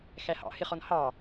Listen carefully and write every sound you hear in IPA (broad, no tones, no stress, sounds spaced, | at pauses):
x æ h ɑ̰ h ɪ χ ɔ n h ɑ